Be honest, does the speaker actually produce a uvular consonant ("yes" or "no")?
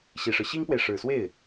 no